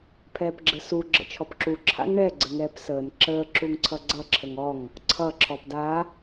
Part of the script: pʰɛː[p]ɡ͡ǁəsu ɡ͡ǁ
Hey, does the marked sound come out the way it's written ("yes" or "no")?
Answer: yes